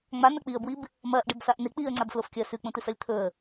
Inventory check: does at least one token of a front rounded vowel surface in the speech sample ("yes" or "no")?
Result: no